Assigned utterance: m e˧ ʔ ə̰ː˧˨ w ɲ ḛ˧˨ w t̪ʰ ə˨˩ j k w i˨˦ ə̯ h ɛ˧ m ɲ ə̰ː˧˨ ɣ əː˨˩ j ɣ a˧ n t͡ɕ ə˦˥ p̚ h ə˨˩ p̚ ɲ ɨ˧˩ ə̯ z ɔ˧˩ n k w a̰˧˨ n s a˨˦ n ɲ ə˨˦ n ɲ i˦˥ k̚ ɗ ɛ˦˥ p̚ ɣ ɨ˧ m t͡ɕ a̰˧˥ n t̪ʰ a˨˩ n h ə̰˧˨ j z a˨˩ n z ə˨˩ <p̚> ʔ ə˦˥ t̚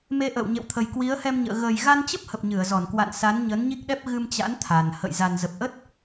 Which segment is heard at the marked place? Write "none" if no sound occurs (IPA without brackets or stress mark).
p̚